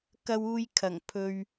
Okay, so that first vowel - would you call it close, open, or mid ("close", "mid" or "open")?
open